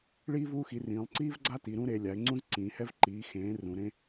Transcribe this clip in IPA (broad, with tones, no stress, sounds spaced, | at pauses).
ɭ iː˦ v uː˦ x i˩˧ r ĩː˩˧ lˠ ǀ iː˦ v ɡ͡ǀ a˦ t i˩˧ ɾ ũ˦ ɾ e˩˧ lʲ a˩˧ ɪ̯ ŋ͡ǀ ũ˦ z ǀ ĩː˩˧ h ɛ˦ v ǃ iː˩˧ x ẽː˩˧ r ũ˩˧ ɾ ẽ˦